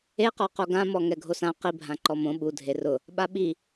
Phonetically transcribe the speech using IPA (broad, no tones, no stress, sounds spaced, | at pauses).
e q ɔ q o ɡ ã m ɔ ŋ ɛ ɡʱ o s ã q i bʱ ã ǃ ɔ m õ ɓ u dʱ e r ʊ | ɓ a ɓ i